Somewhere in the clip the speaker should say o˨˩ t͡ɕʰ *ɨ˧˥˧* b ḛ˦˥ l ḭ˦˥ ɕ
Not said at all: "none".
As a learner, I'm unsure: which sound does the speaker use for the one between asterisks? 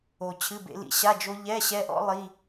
ɨ˧˥˧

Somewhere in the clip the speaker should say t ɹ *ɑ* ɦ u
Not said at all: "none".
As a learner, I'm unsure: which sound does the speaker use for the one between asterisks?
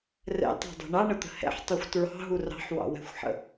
ɑ̤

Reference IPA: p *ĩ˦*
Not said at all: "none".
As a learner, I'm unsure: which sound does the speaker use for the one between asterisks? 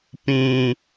ĩ˨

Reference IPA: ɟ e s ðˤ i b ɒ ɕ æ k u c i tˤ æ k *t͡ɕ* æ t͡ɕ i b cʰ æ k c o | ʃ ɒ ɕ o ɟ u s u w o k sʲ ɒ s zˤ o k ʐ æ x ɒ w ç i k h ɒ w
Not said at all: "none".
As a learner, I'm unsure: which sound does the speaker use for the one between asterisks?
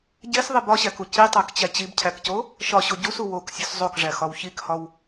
t͡ɕ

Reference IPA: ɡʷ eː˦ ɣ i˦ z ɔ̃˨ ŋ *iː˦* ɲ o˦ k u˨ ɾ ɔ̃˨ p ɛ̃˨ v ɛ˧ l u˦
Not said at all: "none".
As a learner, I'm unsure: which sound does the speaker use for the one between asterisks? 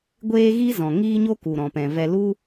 iː˦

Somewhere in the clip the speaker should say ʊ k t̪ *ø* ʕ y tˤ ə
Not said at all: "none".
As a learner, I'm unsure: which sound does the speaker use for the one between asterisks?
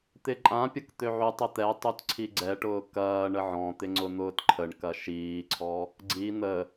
ø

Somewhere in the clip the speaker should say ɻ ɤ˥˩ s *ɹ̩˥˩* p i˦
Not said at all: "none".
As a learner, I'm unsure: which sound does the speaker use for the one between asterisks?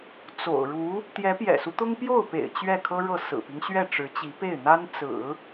ɹ̩˨˩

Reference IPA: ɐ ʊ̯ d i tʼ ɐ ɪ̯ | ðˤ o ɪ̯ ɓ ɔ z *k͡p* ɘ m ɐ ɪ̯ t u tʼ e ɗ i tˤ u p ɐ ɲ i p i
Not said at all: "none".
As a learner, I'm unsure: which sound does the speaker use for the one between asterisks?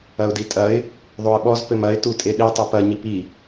p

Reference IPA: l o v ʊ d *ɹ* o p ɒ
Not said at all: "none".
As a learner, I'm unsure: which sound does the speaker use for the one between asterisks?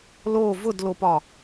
l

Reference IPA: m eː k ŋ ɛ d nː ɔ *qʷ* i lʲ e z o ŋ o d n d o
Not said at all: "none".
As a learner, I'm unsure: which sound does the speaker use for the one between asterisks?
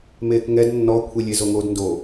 kʷʰ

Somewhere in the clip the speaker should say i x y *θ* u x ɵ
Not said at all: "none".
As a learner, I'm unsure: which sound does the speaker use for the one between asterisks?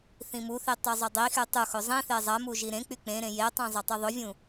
tˤ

